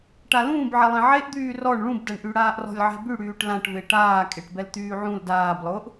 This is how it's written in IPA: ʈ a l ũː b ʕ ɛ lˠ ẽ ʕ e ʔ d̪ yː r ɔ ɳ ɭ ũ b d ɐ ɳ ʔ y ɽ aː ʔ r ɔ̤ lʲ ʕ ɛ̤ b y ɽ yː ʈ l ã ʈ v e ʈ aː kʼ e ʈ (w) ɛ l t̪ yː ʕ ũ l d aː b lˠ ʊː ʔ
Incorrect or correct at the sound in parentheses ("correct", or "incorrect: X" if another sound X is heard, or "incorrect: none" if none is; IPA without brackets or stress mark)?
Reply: incorrect: b